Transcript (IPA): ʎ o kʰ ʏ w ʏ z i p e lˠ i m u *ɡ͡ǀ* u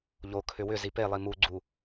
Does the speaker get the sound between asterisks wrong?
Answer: no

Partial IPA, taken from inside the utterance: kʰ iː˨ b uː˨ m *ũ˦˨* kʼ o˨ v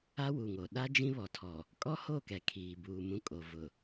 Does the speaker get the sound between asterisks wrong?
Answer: no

